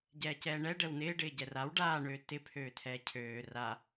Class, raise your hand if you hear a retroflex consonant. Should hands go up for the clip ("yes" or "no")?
yes